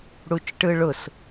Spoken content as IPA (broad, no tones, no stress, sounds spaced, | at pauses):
ɽ u t͡ʃ ʈ ɯ ɭ ʊ s